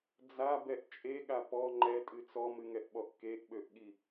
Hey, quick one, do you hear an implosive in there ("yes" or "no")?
yes